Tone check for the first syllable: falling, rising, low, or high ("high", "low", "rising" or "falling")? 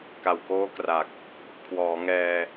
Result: low